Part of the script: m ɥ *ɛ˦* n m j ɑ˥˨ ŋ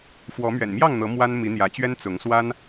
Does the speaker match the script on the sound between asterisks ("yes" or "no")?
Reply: no